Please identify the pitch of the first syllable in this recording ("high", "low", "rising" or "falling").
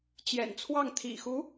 low